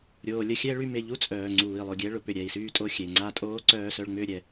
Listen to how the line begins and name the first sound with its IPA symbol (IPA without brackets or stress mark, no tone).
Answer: ɾʲ